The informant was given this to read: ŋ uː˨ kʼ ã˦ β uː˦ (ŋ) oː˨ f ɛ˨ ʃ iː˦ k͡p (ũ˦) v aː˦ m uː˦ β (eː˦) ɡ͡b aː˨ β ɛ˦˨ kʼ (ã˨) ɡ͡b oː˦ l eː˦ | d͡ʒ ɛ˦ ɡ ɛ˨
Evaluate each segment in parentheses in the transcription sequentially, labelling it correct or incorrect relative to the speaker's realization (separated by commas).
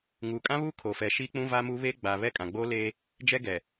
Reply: incorrect, correct, correct, correct